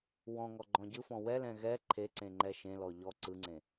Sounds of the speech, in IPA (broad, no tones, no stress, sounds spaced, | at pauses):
w ɔ̃ ŋ ɔ ɡ͡ǃ ɔ̃ ɟ ɯ f ɔ̃ w ɛ l ɛ̃ ɣ ɛ ǃʰ e ǀ ẽ ŋ͡ǃ ɛ ʃ ẽ l ɔ ʎ ɔ ǀ ɯ ŋ͡ǀ ẽ